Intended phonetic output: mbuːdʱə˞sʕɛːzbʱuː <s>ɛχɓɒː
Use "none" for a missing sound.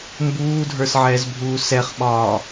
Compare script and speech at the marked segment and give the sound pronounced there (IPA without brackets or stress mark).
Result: s